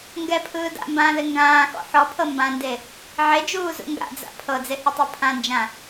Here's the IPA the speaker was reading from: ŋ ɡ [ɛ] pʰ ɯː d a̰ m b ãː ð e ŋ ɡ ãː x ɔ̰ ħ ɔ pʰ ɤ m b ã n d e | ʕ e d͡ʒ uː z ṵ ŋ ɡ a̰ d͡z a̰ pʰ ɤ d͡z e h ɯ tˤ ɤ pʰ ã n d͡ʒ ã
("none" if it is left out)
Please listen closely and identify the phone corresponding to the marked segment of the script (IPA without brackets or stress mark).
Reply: ɛ